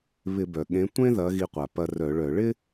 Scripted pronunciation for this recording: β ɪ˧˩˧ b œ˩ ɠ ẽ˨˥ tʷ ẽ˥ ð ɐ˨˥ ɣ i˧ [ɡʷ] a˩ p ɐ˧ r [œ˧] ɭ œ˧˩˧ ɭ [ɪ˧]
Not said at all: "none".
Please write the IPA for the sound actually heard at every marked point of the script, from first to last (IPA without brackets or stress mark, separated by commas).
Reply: qʷ, œ˧˩˧, ɪ˥